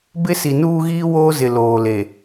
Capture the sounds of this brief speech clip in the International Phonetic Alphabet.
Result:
bɪ˦si˨nuː˦ɣiː˦ woː˦zɪ˨ loː˨le˨

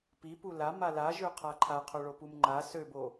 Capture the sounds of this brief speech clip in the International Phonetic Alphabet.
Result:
pipu lama laʒøqʰa ǃʰaqʰoɭopum ŋ͡ǃa søbo

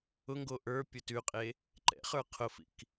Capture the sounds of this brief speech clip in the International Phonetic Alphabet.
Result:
ʊŋɡo ʔə˞ pʲʊtʉqʼe | ǃɛ̰χə˞ qʰʊfḭk

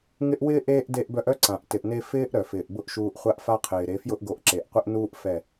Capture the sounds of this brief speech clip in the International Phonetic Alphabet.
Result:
ŋɪ˦ʔ wɪː˦ ʔeː˦ʔ de˧ʔbœ˧ʔœ˦ ǀã˨ʔ tɪ˨ʔne˧ fɪː˦ʔ ɾœ˨fɪː˨ʔbʊ˦ʔʃuː˧ʔ χʷa˦ʔfa˦qʰɪː˨ɾe˨˦ fjʊ˦ʔɡo˨˦ʔǁe˨ʔqʷɪ˦ʔ nuː˦ʔ fɛ˦˨

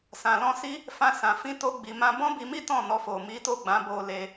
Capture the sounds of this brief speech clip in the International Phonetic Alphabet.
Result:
sã˧lɔ̃˦si˦ | fã˦sã˧fĩ˦ to˦ɡ͡bi˧mã˦ bɔ̃˦bi˧mi˦ tɔ̃˦˨nɔ˧fo˨ mi˨˦to˦˨ɡ͡bã˨˦ bo˧le˧

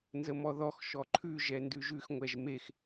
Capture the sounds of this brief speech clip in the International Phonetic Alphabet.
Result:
nzəmɔðɔx ʃɔǃʰʉ ʒɛndʉʒʉx ŋʷɛʒmex

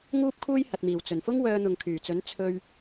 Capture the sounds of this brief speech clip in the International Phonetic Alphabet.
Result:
ŋuː˥p̚kʰuː˥j hɐ˨t̚miː˨˩w t͡sɵ˨˩nfʊ˥ŋ wœː˧n̪ʊ˨ŋkʰyː˨˩t͡sɵ˨˥n t͡sʰɵ˧ɥ

